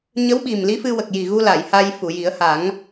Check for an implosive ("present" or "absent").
present